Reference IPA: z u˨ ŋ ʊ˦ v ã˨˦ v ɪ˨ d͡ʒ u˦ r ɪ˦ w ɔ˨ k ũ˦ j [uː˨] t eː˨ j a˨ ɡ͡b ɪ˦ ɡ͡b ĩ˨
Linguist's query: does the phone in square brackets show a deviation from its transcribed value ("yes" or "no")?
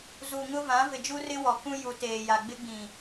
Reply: yes